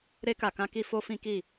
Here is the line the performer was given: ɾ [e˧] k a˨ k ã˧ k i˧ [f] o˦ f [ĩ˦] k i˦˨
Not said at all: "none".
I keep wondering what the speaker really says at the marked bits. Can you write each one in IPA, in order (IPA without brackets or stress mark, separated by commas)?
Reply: e˧, f, ĩ˦